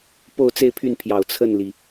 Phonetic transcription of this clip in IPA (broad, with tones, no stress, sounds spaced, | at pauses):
p o˥˧ ʊ̯ t͡s e˥˧ ɪ̯ pʰ y˥˩ n pʰ j ɑ˨˩ ʊ̯ t͡sʰ ə˥˩ n l i˩